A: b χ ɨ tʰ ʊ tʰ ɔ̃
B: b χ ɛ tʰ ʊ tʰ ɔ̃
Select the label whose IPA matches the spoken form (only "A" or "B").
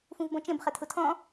B